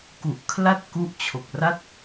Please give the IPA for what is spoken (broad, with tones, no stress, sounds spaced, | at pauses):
k u˨˩ ʔ kʰ l a˥˩ t̚ k u˦˥ ʔ t͡ɕʰ o˨˩ k̚ r a˥˩ t̚